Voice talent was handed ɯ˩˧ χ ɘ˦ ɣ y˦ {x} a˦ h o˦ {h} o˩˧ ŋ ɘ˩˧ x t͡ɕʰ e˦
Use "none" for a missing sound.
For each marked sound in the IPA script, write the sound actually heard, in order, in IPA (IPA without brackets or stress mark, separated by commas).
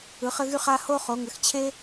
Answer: χ, χ